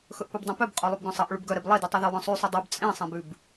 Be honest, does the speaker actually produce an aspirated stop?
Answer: no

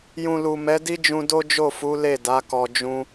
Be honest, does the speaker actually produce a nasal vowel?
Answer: yes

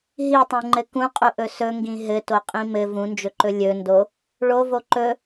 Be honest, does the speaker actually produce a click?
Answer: yes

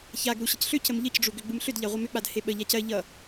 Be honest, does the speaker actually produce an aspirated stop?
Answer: no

